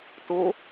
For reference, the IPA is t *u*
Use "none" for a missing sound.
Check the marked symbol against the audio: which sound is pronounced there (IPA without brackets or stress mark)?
u